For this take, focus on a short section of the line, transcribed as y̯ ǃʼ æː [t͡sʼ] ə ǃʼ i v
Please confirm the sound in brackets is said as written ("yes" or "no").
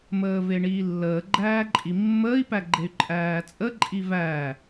yes